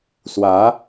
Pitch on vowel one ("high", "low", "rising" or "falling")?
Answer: rising